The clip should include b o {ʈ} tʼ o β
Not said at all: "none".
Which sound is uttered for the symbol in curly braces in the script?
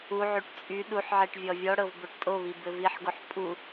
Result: ʈ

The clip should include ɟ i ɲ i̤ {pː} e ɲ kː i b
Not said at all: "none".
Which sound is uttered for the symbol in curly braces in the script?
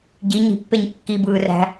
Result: pː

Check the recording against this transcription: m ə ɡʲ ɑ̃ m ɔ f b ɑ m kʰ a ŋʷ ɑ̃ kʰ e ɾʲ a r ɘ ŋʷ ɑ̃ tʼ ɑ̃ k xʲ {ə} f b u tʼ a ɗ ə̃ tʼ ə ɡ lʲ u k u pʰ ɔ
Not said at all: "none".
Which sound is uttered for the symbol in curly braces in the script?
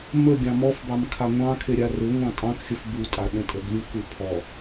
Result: ə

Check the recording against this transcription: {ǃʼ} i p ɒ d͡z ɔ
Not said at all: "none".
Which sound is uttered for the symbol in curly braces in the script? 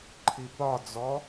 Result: ǃʰ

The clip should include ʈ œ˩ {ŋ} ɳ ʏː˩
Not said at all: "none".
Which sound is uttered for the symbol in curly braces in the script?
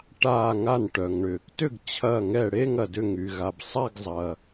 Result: ŋ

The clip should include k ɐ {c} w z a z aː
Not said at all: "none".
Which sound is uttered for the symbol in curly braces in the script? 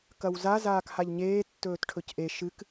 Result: none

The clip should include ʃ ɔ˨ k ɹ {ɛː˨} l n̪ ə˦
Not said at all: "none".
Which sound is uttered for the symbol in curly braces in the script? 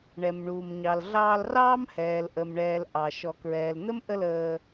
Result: ɛː˨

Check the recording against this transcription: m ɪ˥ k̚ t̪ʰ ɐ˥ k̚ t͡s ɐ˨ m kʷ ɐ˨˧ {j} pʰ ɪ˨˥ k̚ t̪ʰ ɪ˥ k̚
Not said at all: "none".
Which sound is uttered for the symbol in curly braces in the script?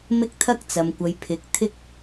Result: j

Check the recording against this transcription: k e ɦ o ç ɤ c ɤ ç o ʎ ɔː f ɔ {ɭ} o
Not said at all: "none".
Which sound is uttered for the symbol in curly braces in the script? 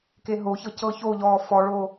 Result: ɭ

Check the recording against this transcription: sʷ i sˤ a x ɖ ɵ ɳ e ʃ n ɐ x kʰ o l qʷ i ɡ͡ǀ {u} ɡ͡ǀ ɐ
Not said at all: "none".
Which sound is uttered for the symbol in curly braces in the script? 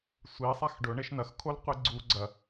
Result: u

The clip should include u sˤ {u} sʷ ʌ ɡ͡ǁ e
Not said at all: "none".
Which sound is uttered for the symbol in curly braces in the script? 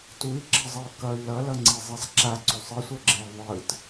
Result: ɯ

